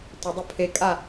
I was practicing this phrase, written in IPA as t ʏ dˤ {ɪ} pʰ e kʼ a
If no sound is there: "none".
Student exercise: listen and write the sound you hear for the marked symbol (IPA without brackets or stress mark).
ɪ